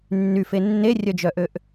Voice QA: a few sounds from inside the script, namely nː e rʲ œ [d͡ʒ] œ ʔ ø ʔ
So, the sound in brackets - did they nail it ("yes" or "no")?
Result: yes